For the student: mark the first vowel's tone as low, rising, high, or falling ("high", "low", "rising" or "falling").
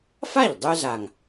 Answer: falling